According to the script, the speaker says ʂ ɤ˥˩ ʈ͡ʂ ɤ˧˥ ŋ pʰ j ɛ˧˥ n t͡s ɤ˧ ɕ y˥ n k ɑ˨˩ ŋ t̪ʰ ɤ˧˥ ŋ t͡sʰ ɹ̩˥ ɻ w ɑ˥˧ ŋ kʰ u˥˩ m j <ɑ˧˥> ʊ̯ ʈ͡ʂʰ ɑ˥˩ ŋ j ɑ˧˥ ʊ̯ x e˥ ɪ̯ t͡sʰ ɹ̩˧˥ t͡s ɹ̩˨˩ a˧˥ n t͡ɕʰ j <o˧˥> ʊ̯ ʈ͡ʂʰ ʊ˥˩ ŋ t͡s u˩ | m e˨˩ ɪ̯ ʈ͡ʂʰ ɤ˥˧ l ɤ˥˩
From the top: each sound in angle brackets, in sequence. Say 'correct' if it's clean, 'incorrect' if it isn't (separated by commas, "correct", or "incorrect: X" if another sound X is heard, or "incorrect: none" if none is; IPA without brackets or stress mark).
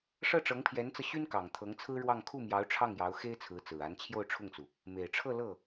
correct, incorrect: o˥˧